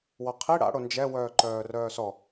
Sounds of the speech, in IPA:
w ɔ qʰ i ɽ a̰ ɽ o n d͡ʒ ɛ w œː ǃ œː r œː s ɔ

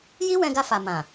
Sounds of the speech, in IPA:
j i˦ w ɛ̃˧ ɡ a˧ f a˨ m ã˨

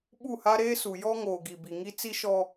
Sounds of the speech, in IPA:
ɓ u˦˨ h a˦ ɾ eː˦ s u˨ j ɔ˦ ŋ oː˨ ɡ i˨ b i˨ ŋ i˦ t͡s i˦ ʃ ɔ˦

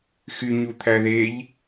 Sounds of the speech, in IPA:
x y ɲ u t̪ʰ æ ð e ʎ

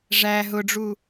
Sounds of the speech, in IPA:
ʐ æ ɦ ʊ ɖ͡ʐ u

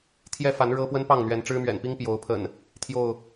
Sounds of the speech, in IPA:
t̪ʰ j ɛ˦ f a˨˦ n ɻ ɤ˦ p w ə˦ n p ɑ˥˨ ŋ n̪ ɥ ɛ˨˦ n ʈ͡ʂ ɻ̩˦ m ɥ ɛ̰˨˩ n p i˦ ŋ p j o˨˦ ʊ̯ pʰ ə̰˨˩ n | t̪ʰ j o˥˨ ʊ̯

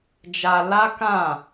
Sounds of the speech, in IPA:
d͡ʒ a˧ l a˦ k ã˦˨

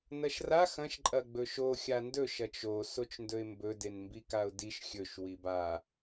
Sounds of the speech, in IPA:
n ɐ ʃ r a x ɐ̃ ʃ ǃʼ ɐ ɡ͡b ɵ ʃ o xʲ a n d ɵ ʃ ɐ t͡ʃ o s o t͡ʃ n d ɵ ɪ̯ m b ɵ d e n m b i k a ʊ̯ d i ʃ xʲ ɵ ʃ w i b a

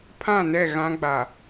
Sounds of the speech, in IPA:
pʰ ã˦˨ n ɛ˦˨ ɣ ã˦ ɡ͡b a˨

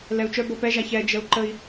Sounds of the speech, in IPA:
l ɛ u̯ t͡ʃ œ b ɤ p ɛ ʒ a ç ɛ d͡ʒ ə u̯ ǃ ə i̯

